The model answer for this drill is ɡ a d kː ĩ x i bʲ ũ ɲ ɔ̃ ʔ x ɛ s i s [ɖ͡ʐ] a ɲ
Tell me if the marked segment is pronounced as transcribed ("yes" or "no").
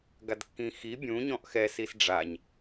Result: yes